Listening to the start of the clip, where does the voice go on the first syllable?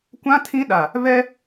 high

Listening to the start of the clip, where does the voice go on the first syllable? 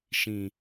low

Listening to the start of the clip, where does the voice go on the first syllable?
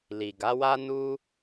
low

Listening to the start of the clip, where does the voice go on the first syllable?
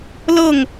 falling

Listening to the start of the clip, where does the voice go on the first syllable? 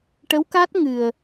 rising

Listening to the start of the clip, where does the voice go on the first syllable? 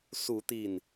rising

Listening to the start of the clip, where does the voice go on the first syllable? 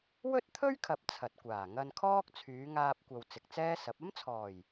high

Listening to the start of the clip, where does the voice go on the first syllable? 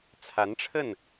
rising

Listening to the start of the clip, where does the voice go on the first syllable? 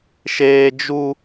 high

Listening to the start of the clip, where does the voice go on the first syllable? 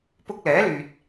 high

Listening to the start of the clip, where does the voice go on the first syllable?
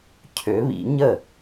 rising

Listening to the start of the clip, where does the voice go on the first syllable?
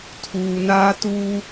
low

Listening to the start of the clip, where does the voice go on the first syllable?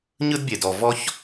high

